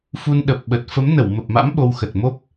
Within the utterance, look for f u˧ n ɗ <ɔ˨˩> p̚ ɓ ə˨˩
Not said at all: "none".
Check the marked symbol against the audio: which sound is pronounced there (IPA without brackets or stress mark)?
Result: ə˨˩